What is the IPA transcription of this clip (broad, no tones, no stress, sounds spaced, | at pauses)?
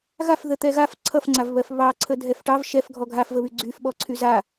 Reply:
ɣ a f ð ə t̪ ɛ ɣ a f ǀʰ ʌ f ŋ͡ǀ a v β ɜ f β ɑ ǀʰ ə dʱ ɛ f ʈ ɑ v ʃ ɛ f ɡʱ ɔ ɡʱ a f v ə β y ɡ͡ǀ y f ɓ ɔ ǀʰ y z a